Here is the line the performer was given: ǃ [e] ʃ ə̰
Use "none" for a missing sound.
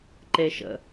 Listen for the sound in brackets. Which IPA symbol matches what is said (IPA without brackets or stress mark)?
e